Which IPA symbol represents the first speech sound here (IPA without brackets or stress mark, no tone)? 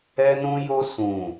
ɛ